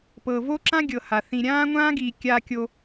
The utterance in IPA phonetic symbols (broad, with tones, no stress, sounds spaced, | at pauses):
p ɤ˨ v o˦ ǁ ã˦ ɡʲ ɤ˨ h a˨ θ ĩ˨ ɾʲ ãː˦ ŋʷ ãː˦ ɡ iː˨ kʲ a˦ kʲ o˦